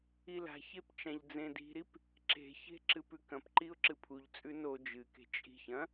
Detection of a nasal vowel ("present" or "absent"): present